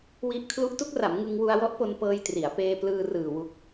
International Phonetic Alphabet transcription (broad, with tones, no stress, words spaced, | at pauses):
wi˦˥ʔ kʰlu˦˥ʔtu˦˥k̚ra˩˦m ŋɯ˧ŋ wu˧a̯wɔ˦˥ʔ po˧npɤː˧j tri˩˦a̯ peː˧plɯː˧ rɯː˨˩wu˦˥k̚